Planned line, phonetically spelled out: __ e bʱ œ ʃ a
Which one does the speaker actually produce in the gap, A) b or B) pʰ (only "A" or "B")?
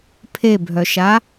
B